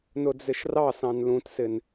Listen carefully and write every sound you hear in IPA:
n ʊ d͡z ɪ ʃ r ɑ s ɑ̃ n l ũ t s ɪ n

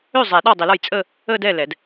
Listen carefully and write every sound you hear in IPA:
ø˥˩ zˤ ɛ˨˩˦ ɗ ɒː˥˩ dˤ i˨˩˦ l ɒ˥˩ j t͡sʼ əː˥˧ | əː˥˧ d ɛ˥˩ l ɛ˨˩˦ d

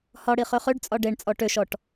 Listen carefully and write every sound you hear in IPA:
h ɒ ɽ i χ ø χ ø ɖ t͡sʼ ɒ ɖ e ɳ t͡sʼ ɔ ʈ ø ʃ ɔ ʈ

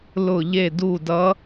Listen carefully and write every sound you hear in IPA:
l ʊ˦˨ ʎ e˦˨ d u˦˨ d ʌ˧˥

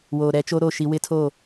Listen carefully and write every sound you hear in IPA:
w oː˨ ɾ ɛ˦ t͡ʃ o˦ ɾ o˦˨ ʃ i˦ w ɪ˦ tʰ o˦˨

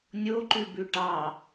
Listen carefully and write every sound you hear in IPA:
nʲ o ǃ ʉ b ʉ ʈ ɑ

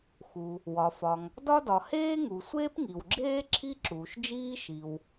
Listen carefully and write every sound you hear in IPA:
x u˩ | w ɒ˩ f ɒ˩ ŋ | d ɒ˥ d ɒ˩ h eː˥ ŋ u˩ sʷ eː˥ p ŋ i˩ w ɡ͡ǁ eː˥ ǁʰ i˥ ǁ uː˩ ʃ d͡ʒ iː˥ ʃ i˩ w

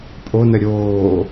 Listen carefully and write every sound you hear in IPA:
pʼ o n ə ɾʲ oː

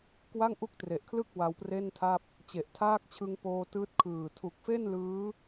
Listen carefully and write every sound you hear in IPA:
k w a˥˩ ŋ ʔ u˦˥ k̚ t r e˨˩ ʔ kʰ l ɯ˥˩ k̚ w a˧ w p r e˥˩ n tʰ a˥˩ p̚ | t͡ɕ e˨˩ ʔ tʰ aː˥˩ k̚ t͡ɕʰ ɯ˧ ŋ p oː˧ t ɯː˦˥ t̚ kʰ ɯː˨˩ tʰ u˨˩ k̚ f e˥˩ n l ɯː˦˥

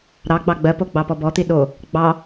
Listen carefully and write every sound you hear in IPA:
ɾ ɑ ɡ͡b ɑ ɡ͡b ɜ p o ɡ͡b ɑ p ɔ b ɔ t̪ i ɗ o | ɡ͡b ɑ

